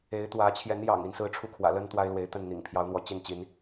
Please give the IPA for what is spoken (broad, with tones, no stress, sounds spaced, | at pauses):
e˨˦ ɪ̯ t̪ w ä˨˦ t͡ɕʰ j ɛ˨˦ n j ɑ̰˨˩ ŋ i˨˦ n s ɹ̩˦ ʈ͡ʂʰ u˥˨ kʰ w ä̰˨˩ l ə˦ n t̪ w a˦ ɪ̯ l w e˨˦ ɪ̯ t̪ ə˥˨ n n̪ ḭ˨˩ ŋ pʰ j ɑ˨˦ ʊ̯ n̪ w ɔ˨˦ t͡ɕ i˥˨ n t͡ɕ i˨˦ n